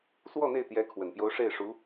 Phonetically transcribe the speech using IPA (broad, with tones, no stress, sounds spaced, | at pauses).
s w ɔ˥˧ n̪ e˥˩ ɪ̯ t̪ j ɛ˧˥ kʰ w ə˨˩ n p j o˧˥ ʊ̯ ʂ e˥˩ ɪ̯ ʂ u˧˥